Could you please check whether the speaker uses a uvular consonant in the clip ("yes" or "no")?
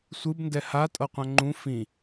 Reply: yes